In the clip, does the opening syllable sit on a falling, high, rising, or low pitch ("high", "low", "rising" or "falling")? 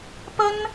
high